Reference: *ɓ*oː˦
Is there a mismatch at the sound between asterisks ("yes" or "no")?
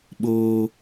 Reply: no